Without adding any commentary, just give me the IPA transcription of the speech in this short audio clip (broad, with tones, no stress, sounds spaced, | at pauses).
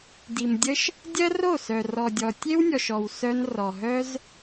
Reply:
d i˨ m dʲ ə˦ ʃ | dʲ ɜ˦ r o˦˨ s œ˨ r ɔ˨ dʲ ɔ˨ tʲ e˦ w nʲ ɔ˨ ʃ ɔ˨ w s œ˧ n r ɔ˨ ɦ œ˦ z